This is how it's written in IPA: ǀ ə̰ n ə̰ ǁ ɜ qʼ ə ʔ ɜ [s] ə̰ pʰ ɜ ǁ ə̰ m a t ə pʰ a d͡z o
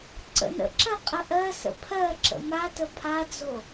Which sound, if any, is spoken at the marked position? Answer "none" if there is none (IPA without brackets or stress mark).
s